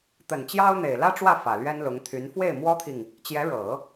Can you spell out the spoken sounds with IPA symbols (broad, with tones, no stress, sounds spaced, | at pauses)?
t̪ ə˨˩ n t͡ɕ j ɑ˥ ʊ̯ n̪ e˨˩ ɪ̯ l ä˥ ʈ͡ʂ w ä˥˩ f ä˨˩ l ɥ ɛ˥ n l ʊ˧˥ ŋ t̪ʰ y˧˥ n f w e˥˩ ɪ̯ m w ɔ˥ t̪ʰ i˨ ŋ | t͡ɕ j ɛ˧˥ ɻ ɤ˨˩˦